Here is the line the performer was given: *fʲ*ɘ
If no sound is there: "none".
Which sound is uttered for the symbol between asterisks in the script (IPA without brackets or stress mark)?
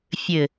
fʲ